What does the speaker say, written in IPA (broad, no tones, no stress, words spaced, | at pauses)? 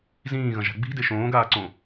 zĩːɣɐ̃ʒa̤ ɡ͡bi̤de ʃõːɡaːǀõ